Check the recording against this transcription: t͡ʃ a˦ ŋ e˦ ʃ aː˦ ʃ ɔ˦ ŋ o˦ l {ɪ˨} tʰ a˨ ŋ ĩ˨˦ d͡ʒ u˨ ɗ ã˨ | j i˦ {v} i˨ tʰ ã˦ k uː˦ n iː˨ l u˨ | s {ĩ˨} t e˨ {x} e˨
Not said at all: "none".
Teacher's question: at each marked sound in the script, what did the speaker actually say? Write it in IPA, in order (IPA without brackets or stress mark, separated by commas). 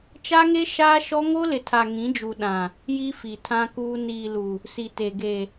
ɪ˨, f, i˨, ɡ